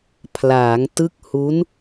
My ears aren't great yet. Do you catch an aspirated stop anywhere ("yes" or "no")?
yes